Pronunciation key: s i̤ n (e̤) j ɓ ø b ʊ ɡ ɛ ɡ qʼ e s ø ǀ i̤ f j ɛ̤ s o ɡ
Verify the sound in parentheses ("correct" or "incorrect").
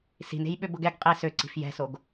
correct